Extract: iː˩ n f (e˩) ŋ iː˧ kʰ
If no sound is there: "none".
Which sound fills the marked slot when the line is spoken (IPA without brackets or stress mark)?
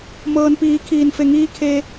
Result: e˩